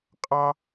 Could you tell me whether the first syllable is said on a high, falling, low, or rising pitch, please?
high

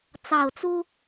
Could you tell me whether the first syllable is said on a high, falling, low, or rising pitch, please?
low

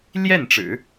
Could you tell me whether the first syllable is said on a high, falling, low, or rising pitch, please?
falling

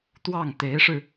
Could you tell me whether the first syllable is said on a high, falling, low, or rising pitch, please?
falling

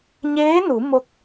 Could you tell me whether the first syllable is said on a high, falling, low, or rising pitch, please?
rising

